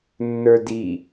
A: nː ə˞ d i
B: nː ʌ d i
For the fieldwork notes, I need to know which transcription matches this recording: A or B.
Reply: A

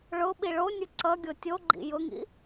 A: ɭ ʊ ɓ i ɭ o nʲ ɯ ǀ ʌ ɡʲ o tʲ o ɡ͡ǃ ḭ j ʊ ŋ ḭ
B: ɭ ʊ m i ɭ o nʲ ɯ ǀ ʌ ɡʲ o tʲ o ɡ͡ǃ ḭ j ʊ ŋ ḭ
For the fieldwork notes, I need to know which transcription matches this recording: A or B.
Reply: A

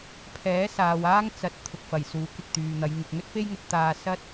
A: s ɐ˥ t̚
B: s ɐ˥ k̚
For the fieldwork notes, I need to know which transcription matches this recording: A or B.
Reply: A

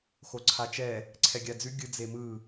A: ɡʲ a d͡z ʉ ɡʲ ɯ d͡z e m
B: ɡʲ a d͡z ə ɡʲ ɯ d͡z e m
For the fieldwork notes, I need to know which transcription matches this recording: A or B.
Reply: A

